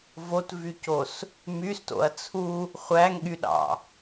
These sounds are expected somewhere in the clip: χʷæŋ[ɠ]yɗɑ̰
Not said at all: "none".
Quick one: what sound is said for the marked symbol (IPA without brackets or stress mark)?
ɠ